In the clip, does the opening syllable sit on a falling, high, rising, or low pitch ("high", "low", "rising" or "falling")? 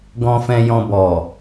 low